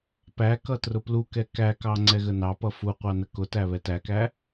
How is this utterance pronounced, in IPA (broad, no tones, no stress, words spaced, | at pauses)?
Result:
pækʌ trʊplukɛ kækɑ ŋ͡ǀɛɣənɑpʌ fu qʷɑnəkʊtæ βɛtækæ